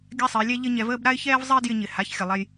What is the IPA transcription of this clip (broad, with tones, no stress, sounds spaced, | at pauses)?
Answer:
ɡʲ a˥ sˤ ɪː˩˧ lʲ ɛ˥ ʎ ɪ˥ ɲ ɛ˧ v əː˥ b ɾ a˥ ɪ̯ ç ɛː˥ v zˤ ɪː˥ d j ɪ˧ ɲ ɪ˨˩ h a˩˥ ç xʲ ə˨˩ lˠ ɛ˧ j